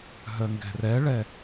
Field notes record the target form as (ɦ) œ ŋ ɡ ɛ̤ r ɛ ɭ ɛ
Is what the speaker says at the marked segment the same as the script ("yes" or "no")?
yes